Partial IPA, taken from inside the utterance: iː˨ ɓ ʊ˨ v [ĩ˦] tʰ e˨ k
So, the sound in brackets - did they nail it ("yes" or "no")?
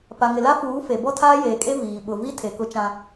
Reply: no